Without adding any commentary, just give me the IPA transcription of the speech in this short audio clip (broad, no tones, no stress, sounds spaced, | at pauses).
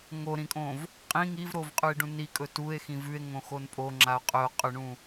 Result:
ŋ o ɾ ĩ kʼ õ v | qʼ ĩ ŋ i v ɾ o v qʼ ʉ e̯ ɖ ũ n i kʼ ɵ t u e̯ x ĩ v ʉ e̯ ŋ õ x o n pʼ o ŋ͡ǁ a o̯ qʼ ɵ o̯ qʼ ɵ ɳ ũ